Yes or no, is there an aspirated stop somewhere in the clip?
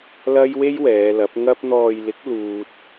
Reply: no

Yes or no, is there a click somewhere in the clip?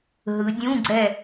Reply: yes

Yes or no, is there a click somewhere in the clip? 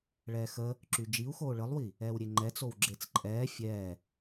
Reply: yes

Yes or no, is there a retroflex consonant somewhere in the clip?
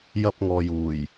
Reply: no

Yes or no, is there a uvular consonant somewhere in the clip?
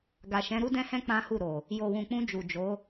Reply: no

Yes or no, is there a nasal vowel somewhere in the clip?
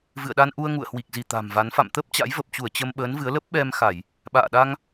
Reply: no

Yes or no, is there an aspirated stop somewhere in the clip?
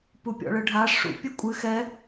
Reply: no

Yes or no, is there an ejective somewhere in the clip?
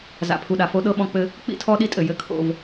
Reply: yes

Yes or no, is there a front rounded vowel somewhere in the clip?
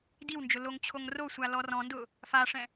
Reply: no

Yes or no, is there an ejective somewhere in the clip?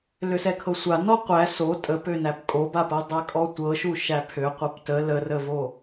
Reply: yes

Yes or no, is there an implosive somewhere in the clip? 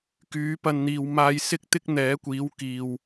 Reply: no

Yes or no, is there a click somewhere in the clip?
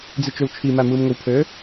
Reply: no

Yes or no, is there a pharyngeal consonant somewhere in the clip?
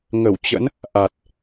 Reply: no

